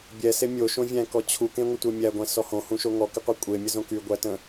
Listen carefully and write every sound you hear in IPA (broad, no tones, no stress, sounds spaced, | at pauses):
bʲ ɛ s e mʲ o ʃ õ vʲ æ̃ k ɔ t͡ɕʰ u k ẽ ŋʷ ə tʷ ɛ mʲ æ ɡʷ æ̃ s ɔ h õ h ũ ʃ o ŋ ɔ k ɪ qʷ e kʷʼ e mʲ ə z õ k y ɡʷ æ t ə̃